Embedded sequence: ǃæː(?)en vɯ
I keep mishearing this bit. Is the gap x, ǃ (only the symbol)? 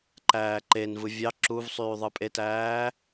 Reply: ǃ